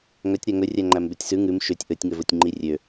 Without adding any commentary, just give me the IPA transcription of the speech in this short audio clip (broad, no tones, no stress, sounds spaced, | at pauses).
ŋ œ tʲ ɾ æ ŋ ɵ rʲ æ ŋ͡ǃ æ m b e tʲ s ʉ ŋ ʉ m ʃ ø tʲ ʔ ɵ tʲ ŋ ɵ v ɵ tʲ ŋ͡ǃ i rʲ ø